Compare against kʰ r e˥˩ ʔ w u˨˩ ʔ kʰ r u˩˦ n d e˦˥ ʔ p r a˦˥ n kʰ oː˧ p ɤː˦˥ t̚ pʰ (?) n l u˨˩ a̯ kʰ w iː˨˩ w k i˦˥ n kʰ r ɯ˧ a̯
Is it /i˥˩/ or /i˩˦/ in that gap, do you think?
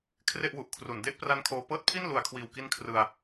i˥˩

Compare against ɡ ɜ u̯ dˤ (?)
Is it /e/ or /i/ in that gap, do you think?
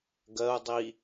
i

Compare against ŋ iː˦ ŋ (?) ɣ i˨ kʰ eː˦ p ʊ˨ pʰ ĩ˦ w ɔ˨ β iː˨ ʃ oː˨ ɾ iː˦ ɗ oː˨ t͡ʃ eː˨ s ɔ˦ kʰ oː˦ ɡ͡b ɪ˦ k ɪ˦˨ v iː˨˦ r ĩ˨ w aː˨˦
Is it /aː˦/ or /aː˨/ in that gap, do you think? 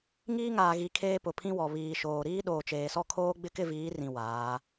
aː˨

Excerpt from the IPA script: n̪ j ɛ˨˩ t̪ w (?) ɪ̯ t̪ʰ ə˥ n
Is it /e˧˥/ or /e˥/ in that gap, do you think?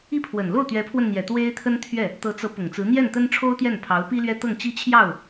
e˥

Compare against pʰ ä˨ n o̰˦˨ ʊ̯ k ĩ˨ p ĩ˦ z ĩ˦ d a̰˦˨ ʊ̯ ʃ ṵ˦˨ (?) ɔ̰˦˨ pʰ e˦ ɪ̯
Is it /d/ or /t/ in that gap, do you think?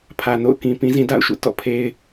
t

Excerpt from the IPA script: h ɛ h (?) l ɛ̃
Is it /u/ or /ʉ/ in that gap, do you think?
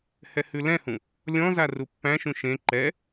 ʉ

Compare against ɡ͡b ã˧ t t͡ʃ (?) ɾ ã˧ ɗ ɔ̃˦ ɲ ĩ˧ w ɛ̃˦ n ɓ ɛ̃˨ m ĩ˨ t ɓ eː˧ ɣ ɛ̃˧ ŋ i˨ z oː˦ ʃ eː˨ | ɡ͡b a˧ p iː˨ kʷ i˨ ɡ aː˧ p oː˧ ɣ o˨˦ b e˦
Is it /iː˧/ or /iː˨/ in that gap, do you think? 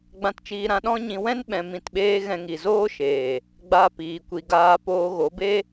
iː˧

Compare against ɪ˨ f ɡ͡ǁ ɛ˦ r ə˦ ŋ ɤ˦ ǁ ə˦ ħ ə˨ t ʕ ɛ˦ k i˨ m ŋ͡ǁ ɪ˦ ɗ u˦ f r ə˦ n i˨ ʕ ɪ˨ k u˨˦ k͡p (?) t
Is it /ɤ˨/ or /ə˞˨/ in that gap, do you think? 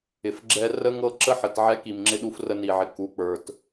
ə˞˨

